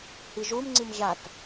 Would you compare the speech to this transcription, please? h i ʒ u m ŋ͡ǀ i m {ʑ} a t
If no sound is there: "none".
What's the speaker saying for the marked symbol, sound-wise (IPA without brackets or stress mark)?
ʑ